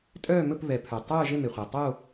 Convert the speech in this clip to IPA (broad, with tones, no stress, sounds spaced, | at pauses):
tʼ œː˥˧ m ɵ˥˧ p β ɛ˨ pʰ œ˨ tˤ œː˥˧ ʒ e˥˧ m e˨ χʷ ɛ˨ tˤ o˥˧